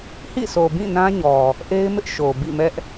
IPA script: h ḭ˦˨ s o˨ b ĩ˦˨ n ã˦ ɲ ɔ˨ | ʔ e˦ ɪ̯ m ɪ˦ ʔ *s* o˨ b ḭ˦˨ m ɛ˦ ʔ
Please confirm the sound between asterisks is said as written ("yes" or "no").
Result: no